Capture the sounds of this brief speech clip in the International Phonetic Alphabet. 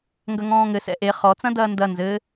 ŋ ɡ ɐ ŋ ɔ̃ː ŋ ɘ s ɛ̰ ʔ e χ ɔ t͡s ɐ̃ d ɐː n d ɐ n z ɘ

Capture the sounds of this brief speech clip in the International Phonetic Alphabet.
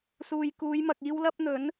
s uː˨ j k uː˨˧ j m ɐ˨ k̚ iː˥ w l ɐ˥ p̚ n̪ ɵ˨˥ n

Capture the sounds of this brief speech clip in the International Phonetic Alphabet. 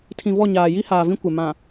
tʰ ĩ˨ v ɔ˦˨ ɲ aː˨ j i˦ h aː˨ v ĩ˦ kʷ e˨ m ã˨

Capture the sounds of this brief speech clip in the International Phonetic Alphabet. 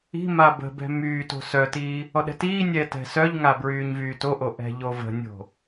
i̤ m a b ə̤ b ɛ̤ m yː t o̤ s œ t iː | ɔ ɗ ɛ̤ t iː nʲ ɛː t ɛ̤ s œ ʎ ŋ a b ɹ yː ɲ v yː t o ʔ o ʔ ɛ̤ ʎ o v ə̤ nʲ o̤

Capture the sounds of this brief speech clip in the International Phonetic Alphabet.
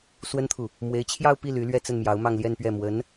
s w ə˥ n t̪ʰ u˨ | m w e˧˥ ɪ̯ t͡ɕʰ j ɑ˥˧ ʊ̯ p i˥˩ l y˧˥ l ɥ ɛ˥˧ t͡s ə˥˩ n m j ɑ˧˥ ʊ̯ m ɑ˥˧ ŋ l j ɛ˥˧ n p ɥ ɛ˥˩ m w ə˧˥ n

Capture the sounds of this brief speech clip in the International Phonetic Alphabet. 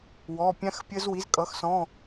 w ɔ˩˧˩ pʲ ã˦˥ x pʲ ə˦˥ z w i˩˥ z kʼ ʌ˩˥ x s ɔ̃˩˧˩

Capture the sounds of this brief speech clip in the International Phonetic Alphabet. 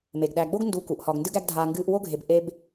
m e˩ ɡ ɗ æ˨ ɡ͡b o˥ ɡ n d u˨ k u˩ ʔ h ɒ˨ ɡ n d ɨ˥ ɡ æ˥ ɡ dʱ aː˦ ŋ ɡ ɨː˦ ʔ w o˥ ɡʱ e˨ b ʔ e˥ b

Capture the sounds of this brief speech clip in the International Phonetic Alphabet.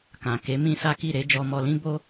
k ã˨ k e˨˦ m ĩ˦ s a˦ k i˦˨ ɾ e˨˦ d͡ʒ ɔ˧ m ɔ˧ l ĩ˦ b o˦

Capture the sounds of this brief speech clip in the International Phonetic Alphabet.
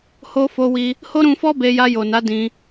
h o˧ f o˧ w i˧ | h o˦ ɾ ũ˧ f ɔ˦ b e˧ j a˧ j o˨ n a˨˦ d ĩ˧

